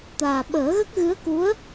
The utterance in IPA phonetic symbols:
t̪ aː˨˩ ɓ əː˨˩˦ ɣ ə˦˥ k̚ ɣ ɨ˧˥ ə̯ k u˧˥ ə̯

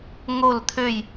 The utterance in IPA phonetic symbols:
ŋ o˧˩ l t̪ʰ ø˧˩ j

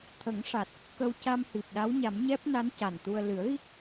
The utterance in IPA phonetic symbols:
t̪ʰ ə˨˩˦ ŋ ʂ a˨˩ t̚ | k ə˧ w c a˧ m h i˨˩ p̚ ɗ a˧˥ w ɲ a˨˩˦ m ɲ ɛ˦˥ p̚ n a˧˥ n c a˨˩ n t̪ u˧ ə̯ l ɨ˨˩˦ ə̯ ɣ i˦˥ k̚

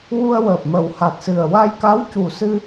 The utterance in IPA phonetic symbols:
w u˧ ə̯ w əː˨˩ p̚ m ə˨˩ w h a˨˩ t̚ s ɨ˨˩ ə̯ w a˧ j k a˧˥ w c u˨˩ s ɨ˧

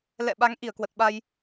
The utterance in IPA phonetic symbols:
l ɛ̰˧˨ ɓ a˨˦ ŋ ʔ i˧˩ ə̯ k w ə˨˩ t̚ ɓ a˧ j

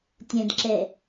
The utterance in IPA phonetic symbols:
tʲ ɛ̃ d ǁ ɛ

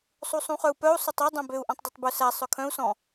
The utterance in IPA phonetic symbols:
sˤ u sˤ ũ χ œ u̯ p œ u̯ sˤ ɵ tˤ ø dˤ œ̃ b ø u̯ ʔ ɔ̃ tˤ dˤ ø tˤ b ɵ s æ sˤ œ kʰ œ̃ u̯ s ɔ̃

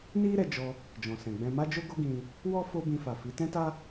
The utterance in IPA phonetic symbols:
n i˦ ɾ ɛ˧ d͡ʒ ɔ˧ | d͡ʒ ɔ̃˨ s ɛ̃˨ ɡ͡b ɛ̃˧ m a˦ d͡ʒ o˦ ɡ o˦ ɡ ĩ˧ | w ɔ˦ f o˦ b ĩ˧ f a˨ f i˨˦ t ɛ̃˦ t a˦

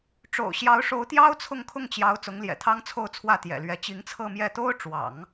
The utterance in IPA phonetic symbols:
ʈ͡ʂ o̰˨˩ ʊ̯ ɕ j ɑ˧˥ ʊ̯ ʂ o˧˥ ʊ̯ t̪ j ɑ˥ ʊ̯ t͡sʰ ʊ˥˧ ŋ kʰ ʊ˥˩ ŋ t͡ɕ j ɑ˧˥ ʊ̯ t͡s ʊ˧˥ ŋ l j ɛ̰˨˩ t̪ʰ ɑ˥ ŋ t͡sʰ o˥˧ ʊ̯ t͡sʰ w ä˥˩ t̪ j ɛ̰˨˩ l ɥ ɛ˧˥ t͡ɕ i˧˥ ŋ t͡sʰ ɤ˥˧ m j ɛ˥˩ t̪ o˥ ʊ̯ ʈ͡ʂ w ɑ̰˨˩˦ ŋ

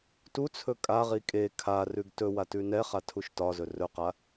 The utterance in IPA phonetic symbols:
t u t͡sʰ ɵ kʼ a ʁ i kʼ e kʰ a r ʉ ɡ t ɵ w a t ʉ n ɛ χ a tʰ u ʃ t ɒ z ɵ r ɵ q a

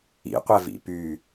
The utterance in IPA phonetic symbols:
ḭ qʷ ɛ v ḭ p y

